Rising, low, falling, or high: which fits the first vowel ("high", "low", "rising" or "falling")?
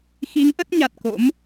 rising